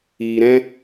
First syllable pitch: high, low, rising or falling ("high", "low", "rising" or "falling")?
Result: low